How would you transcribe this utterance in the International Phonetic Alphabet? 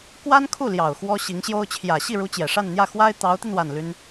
k w a˥ n kʰ u˥˩ l j ɑ˨˩ ʊ̯ x w ɔ˥ ɕ i˧˥ ŋ ɕ j o˥ ʊ̯ t͡ɕʰ j ä˨˩ ɕ i˥˩ ɻ u˧˥ t͡ɕ j ɛ˨˩ ʂ a˥˧ n n̪ j ä˥˩ x w a˥ ɪ̯ t̪ ɑ˧˥ ʊ̯ t̪ i˧ n w a˥˩ n l y˥ n

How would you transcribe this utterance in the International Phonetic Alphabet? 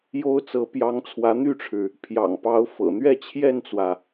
j o˥ ʊ̯ t͡s ɤ˧˥ p j ɑ˧˥ ŋ t͡sʰ w ä˧˥ n̪ y˥˩ ʈ͡ʂʰ ɻ̩˩ | pʰ j ɑ̰˨˩ ŋ p ɑ˧˥ ʊ̯ f ɤ̰˨˩ n̪ ɥ ɛ˥˧ t͡ɕʰ j ɛ˥˩ n t͡s w ä˩

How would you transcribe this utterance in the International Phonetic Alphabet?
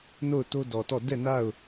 n o˦˨ ʊ̯ t o˦ d ɔ˨ t ɔ˦˨ d ɛ˦˨ n a˦˨ ʊ̯

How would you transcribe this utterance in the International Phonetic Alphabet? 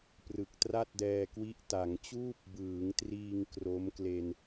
p r ɯ˨˩ k̚ t r a˥˩ t̚ d ɛː˧ k w i˦˥ ʔ t a˩˦ ŋ t͡ɕ uː˥˩ p̚ b ɯː˩˦ ŋ t r iː˧ ŋ k r o˦˥ m k l e˧ n

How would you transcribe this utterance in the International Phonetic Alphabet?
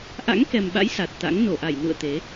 ʔ a̰˧˥ ŋ k ɛ˨˩ m ɓ a̰˧˥ j s a˨˩ t̚ t̪ a̰˧˥ ŋ n o˧˩ ʔ a˧˩ j n ṵ˧˨ ə̯ t̪ e˨˦

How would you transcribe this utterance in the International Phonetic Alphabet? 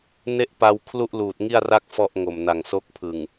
n e˥˩ ʔ p a˧ w kʰ l u˥˩ ʔ l uː˨˩ t̚ ŋ i˥˩ a̯ r a˥˩ k̚ f ɔ˥˩ ʔ ŋ o˨˩ m n a˨˩ ŋ s o˦˥ k̚ pʰ ɯ˨˩ ŋ

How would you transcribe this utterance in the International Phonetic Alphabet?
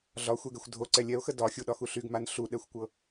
ɮ ɒ xʷ ɛ ɡ ɛ xʷ dʱ o ǀ ɛ lʲ ɛ o̯ x ə d ɒ xʲ u ɗ ɒ x u ɬ y ɡ m a n ɬ u ɗ ɛ xʷ kʷ ɤ

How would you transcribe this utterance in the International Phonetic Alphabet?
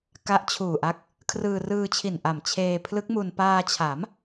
k a˦˥ ʔ t͡ɕʰ uː˨˩ ʔ a˦˥ k̚ | kʰ r ɯː˧ r ɯː˧ t͡ɕʰ i˨˩ n ʔ a˨˩ m t͡ɕʰ eː˧ pʰ l ɯ˦˥ k̚ m u˧ n p aː˧ t͡ɕʰ a˩˦ m

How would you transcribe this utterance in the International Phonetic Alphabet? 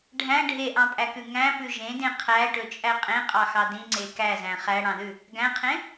ɖʱ æ̃ ɖʱ e ʔ ɑ̃ pʼ æ k ʉ ŋ æ̃ p ʉ ʒ ẽ d ẽ qʰ æ ʈ ɵ t͡ʃʼ æ qʼ ẽ qʼ ɑ x ɑ d ĩ ŋ͡ǀ e k æ z æ̃ χ æ ɽ ɑ̃ ð ʉ | ɡ æ̃ qʰ ẽ

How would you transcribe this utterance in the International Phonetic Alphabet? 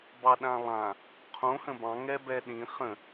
b ɑ ɗ ã lˠ ã | qʰ õ h ə̃ b ɑ̃ ŋ ɛ b ɛ ɗ ĩ χ ə̃

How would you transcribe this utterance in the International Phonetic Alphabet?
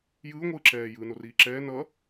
j ɯː ŋʷ ɯː ǁ ɛː j ɯː n o r iː ǁ ɛː n ʌ

